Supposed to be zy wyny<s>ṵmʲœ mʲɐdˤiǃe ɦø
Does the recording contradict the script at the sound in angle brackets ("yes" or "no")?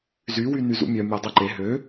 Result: yes